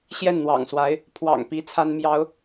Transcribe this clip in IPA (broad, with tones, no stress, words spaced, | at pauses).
ɕjɛ˥˩nn̪wɑ̰˨˩ŋswa˧˥ɪ̯ | pʰwɑ̰˨˩ŋpi˧˥ t͡sʰa˥nmjɑ˧˥ʊ̯